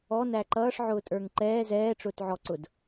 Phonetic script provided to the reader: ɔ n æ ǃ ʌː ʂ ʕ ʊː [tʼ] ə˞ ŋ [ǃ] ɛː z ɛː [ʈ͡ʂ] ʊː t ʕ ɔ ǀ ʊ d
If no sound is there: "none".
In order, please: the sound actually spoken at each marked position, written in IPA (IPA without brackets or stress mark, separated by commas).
tʼ, ǃ, ʈ͡ʂ